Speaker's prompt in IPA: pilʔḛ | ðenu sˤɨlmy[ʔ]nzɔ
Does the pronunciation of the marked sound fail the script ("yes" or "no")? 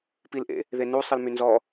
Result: yes